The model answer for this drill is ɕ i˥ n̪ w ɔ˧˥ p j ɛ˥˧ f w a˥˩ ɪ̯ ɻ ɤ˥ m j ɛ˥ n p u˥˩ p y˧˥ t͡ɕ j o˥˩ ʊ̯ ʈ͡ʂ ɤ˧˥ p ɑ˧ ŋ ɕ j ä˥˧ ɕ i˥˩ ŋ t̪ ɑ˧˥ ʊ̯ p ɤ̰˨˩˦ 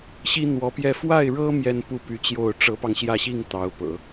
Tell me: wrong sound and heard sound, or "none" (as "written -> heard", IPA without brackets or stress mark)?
none